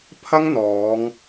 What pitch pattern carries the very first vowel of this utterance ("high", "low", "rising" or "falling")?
high